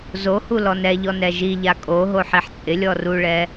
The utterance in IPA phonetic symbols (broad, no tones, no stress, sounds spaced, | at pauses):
z o h u l ɔ n ɛ ʎ ɔ n ɛ ʒ i ʎ a kʼ o ɦ o ħ i ħ t͡sʼ ɪ lʲ ɔ r u ɭ ɛ